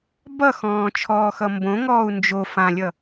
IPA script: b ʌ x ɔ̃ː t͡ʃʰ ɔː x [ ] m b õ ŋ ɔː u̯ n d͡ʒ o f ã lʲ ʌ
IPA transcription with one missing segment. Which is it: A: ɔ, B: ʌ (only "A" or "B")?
B